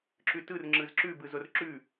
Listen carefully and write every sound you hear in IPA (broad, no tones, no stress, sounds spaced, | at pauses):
ǁ ʉ t ɯ r ŋ͡ǁ ɯ z ǁ ʉ b ɯ z o r ǁ ʉ